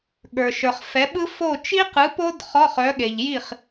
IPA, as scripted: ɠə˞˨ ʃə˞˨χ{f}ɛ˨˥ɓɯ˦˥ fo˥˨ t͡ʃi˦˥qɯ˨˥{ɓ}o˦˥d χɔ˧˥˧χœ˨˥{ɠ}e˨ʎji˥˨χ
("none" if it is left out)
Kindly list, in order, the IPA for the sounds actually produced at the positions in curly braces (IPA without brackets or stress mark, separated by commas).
f, p, ɠ